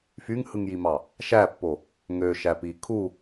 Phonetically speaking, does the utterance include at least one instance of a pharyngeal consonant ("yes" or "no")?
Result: no